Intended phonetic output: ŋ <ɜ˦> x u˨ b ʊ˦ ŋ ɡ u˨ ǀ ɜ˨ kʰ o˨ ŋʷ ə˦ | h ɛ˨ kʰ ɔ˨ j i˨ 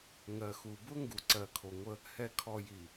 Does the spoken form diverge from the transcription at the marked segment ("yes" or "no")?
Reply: yes